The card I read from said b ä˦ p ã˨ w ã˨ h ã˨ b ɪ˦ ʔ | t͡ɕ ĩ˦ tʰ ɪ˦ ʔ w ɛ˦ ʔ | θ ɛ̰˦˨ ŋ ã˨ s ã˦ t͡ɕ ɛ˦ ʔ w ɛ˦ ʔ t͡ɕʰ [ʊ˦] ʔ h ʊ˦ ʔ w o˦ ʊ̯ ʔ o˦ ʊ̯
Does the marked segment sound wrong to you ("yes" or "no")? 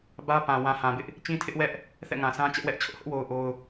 no